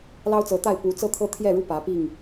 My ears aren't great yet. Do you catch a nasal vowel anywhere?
no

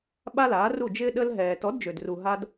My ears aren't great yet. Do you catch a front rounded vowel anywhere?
yes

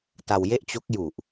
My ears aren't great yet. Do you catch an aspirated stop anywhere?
no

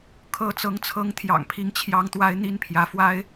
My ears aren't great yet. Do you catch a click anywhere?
no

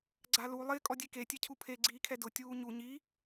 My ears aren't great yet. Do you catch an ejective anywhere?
yes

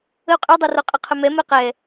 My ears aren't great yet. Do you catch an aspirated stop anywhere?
yes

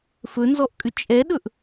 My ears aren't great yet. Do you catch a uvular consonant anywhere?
no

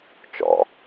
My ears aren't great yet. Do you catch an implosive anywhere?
no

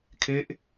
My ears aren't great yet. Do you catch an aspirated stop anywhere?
yes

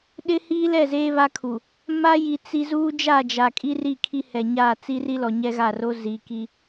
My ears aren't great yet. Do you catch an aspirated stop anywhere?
yes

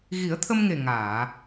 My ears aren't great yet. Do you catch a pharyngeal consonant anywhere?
no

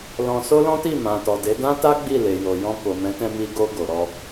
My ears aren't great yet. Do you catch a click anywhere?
no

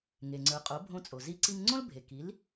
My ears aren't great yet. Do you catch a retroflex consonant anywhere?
no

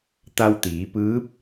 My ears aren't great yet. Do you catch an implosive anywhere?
no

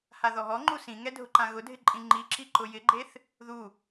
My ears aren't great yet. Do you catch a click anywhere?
yes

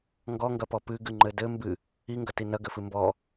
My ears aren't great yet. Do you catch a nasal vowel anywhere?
no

